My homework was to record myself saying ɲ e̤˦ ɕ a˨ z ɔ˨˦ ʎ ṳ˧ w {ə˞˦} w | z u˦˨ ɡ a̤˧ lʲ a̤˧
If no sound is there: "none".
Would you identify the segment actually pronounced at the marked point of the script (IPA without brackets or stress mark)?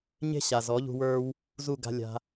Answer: ə˞˦